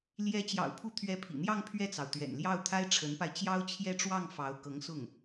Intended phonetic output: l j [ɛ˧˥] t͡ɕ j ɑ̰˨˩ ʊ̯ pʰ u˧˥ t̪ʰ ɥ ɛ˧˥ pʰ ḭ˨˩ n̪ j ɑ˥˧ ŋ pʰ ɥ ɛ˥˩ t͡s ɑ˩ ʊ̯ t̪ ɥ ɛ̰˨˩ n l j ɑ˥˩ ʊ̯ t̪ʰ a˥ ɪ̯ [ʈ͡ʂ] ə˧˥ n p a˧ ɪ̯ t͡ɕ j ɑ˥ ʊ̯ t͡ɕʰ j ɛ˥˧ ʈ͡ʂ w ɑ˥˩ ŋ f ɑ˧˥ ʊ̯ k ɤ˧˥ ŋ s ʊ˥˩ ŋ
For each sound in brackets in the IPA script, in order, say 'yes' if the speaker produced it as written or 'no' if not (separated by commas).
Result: yes, no